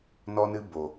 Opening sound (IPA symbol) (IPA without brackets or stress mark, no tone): n